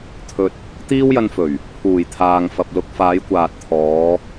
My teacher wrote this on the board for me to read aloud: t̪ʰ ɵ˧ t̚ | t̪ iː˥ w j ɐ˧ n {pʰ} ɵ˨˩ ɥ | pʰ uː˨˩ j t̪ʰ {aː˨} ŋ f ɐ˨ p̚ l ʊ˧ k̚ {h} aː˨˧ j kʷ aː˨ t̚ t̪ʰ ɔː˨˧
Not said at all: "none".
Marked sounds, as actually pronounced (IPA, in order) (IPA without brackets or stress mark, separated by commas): f, aː˨, f